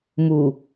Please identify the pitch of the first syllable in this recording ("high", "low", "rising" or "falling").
low